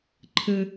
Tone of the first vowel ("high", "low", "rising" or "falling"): high